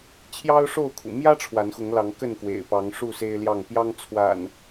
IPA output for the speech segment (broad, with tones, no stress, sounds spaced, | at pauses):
t͡ɕʰ j ɑ˦ ʊ̯ ʂ o˥˨ ʊ̯ kʰ ṵ˨˩ m j ä˦ ʈ͡ʂʰ w a˨˦ n x ʊ˨˦ ŋ l ɑ˨˦ ŋ k ə˥˨ n k w ḛ˨˩ ɪ̯ p ɑ˨˦ ŋ ʂ u˥˨ s e˦ ɪ̯ l j ɑ˥˨ ŋ p j ɑ˦ ŋ t͡sʰ w a̰˨˩ n